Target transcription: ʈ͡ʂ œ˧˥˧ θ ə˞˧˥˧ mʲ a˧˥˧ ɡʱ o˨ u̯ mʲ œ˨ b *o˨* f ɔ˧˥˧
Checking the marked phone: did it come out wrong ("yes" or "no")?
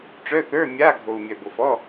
no